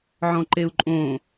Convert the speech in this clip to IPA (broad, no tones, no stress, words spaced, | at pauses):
ʕɔ̃ǃeu̯ǃʼõ